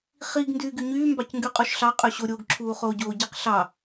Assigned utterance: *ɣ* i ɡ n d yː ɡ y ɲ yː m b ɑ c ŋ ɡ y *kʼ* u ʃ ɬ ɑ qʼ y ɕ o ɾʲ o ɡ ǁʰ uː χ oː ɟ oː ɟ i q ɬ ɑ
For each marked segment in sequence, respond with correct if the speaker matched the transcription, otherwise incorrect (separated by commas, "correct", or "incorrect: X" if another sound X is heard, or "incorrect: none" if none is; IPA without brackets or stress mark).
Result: incorrect: χ, incorrect: qʼ